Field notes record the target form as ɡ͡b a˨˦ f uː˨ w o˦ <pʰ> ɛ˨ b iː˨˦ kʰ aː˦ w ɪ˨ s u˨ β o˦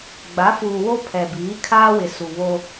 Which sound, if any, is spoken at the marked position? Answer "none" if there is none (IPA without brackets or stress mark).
pʰ